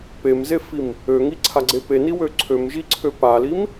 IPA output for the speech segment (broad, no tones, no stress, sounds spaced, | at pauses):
p e m z e f i m | ø ŋ i ǀʰ a ɡ͡ǀ e p e n i w ø ǀʰ ø m ʒ i ǀʰ ø p a l i m